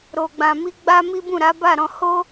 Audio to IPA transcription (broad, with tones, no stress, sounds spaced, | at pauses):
ɾ o˨ ɡ͡b ã˨ m i˧ ɡ͡b a˦ m i˦ b ũ˦˨ ɾ a˨˦ b a˦˨ ɾ ɔ̃˧ h o˦